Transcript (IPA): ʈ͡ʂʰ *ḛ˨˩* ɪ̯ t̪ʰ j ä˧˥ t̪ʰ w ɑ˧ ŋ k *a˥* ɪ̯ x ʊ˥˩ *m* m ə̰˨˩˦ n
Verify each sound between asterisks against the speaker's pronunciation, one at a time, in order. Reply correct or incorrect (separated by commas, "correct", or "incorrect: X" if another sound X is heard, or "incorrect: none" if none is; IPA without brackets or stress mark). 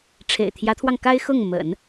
correct, correct, incorrect: ŋ